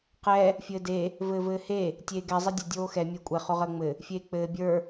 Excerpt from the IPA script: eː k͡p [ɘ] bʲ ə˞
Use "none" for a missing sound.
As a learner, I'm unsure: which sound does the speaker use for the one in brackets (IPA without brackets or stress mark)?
ɘː